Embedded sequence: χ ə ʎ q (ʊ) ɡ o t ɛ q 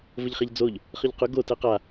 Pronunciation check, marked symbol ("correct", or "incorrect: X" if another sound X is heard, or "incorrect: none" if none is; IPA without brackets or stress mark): correct